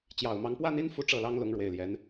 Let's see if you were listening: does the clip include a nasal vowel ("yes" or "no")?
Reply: no